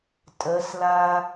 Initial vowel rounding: unrounded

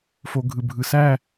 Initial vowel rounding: rounded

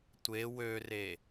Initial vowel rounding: unrounded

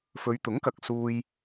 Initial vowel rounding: rounded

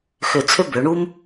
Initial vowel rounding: rounded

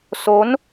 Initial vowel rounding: rounded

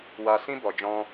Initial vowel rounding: unrounded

